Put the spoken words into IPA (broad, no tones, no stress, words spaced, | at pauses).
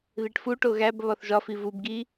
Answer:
ðiʈfuʈo ɣæb βɒθʒɒfi vubɡi